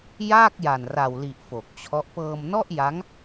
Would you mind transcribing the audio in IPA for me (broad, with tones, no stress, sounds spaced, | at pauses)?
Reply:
j aː˥˩ k̚ j a˨˩ n r a˨˩ w l i˨˩ ʔ f o˨˩ k̚ t͡ɕʰ ɔ˦˥ ʔ p ɤː˧ m n ɔ˥˩ ʔ j a˦˥ ŋ